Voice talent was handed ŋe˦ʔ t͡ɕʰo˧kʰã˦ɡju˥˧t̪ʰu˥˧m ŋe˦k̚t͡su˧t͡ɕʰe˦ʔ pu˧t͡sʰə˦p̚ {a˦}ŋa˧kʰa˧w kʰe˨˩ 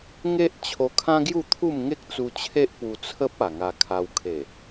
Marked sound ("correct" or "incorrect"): incorrect